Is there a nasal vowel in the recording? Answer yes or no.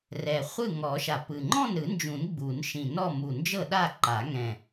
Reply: yes